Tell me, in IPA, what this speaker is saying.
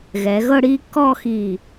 ɣɛ˩˧ ɣɤ˥˧ɽiː˥˧kːɔː˥˧xi˧˩

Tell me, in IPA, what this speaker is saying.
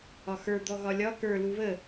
ɒxə˞ d̪ɔɣɒlʲɒ kə˞ luβə

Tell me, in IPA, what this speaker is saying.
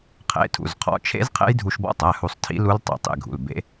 qʰḛ˩˧˩tʰṵ˩˧˩zqʰɔ̰˩˧˩t͡ʃʰḛ˦˥z qʰḛ˦˥jdʱu˧ʃbɔ̰˦˥tˤæ˩˧˩ hu˧sˤ tʰḭ˦˥lu˦˥l tˤḛ˩˧˩tˤḛ˧ɡʱṵ˩˧˩lbḛ˦˥

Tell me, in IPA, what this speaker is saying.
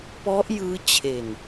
pɔ˦˥ʔjɯː˦˥ t͡ɕʰe˨˩n

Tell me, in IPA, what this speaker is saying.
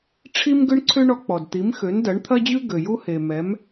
ʈ͡ʂʰi˥m ɡʏ˥ɳǀʰʏ˥ɳɔ˧ k͡pɔ˩dt̪i˩˥m xø˩˥ndɐ˩˥ɳt̪ʰɐ˥d͡ʑʉ˥ ɡø˩ju˥he˩mɛ˩˥m

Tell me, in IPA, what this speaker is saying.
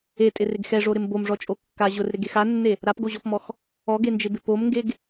etʼɪrɪɡ xɛʐoɾɪm bomʐɔt͡ʃʼo kːa ʑʊrɾɪɡex anːe | ɾapɡoʑɔpmɔx | ɔɡend͡ʒɪbɪ pomŋɡeɡ

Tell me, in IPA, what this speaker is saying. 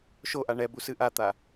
ʃoʔa ɳɛbusɨ ʔat̪a

